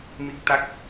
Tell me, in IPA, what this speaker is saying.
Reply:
m i˦˥ k̚ t̪ a˦˥ k̚

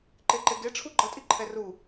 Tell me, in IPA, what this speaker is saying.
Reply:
ǃ e ǃ e ɡ e ʈ͡ʂʰ u ɡ͡ǃ ʌ tʼ i ǃʰ ɛ r u

